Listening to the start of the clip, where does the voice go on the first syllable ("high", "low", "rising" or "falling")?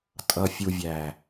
low